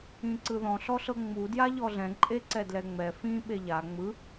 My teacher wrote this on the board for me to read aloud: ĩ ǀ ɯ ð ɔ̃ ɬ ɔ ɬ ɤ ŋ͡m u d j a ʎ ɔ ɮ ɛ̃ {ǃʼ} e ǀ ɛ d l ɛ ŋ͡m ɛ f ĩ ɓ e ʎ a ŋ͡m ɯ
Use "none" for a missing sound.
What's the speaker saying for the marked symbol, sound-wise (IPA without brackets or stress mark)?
ǃʼ